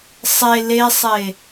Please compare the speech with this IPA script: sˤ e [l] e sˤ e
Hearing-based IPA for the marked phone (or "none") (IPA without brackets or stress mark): l